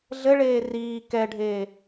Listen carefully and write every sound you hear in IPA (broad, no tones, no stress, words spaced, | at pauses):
ɮɘɭeː riː kɛɖʱeː